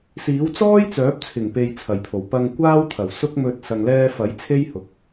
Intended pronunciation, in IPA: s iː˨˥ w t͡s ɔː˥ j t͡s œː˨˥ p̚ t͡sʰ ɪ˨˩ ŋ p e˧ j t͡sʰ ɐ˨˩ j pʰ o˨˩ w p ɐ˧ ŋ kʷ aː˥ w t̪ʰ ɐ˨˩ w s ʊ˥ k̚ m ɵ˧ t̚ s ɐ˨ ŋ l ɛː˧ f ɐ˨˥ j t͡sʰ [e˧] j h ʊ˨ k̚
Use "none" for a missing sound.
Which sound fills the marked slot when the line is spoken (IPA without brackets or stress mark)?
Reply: e˥